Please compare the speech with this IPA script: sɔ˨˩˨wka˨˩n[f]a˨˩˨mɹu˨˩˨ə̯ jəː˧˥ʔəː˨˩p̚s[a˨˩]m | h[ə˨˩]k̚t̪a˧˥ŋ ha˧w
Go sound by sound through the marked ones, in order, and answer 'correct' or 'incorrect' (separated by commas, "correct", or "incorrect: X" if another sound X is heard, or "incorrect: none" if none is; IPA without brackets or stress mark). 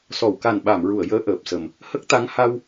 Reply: incorrect: ɓ, incorrect: ə˨˩, incorrect: ə˦˥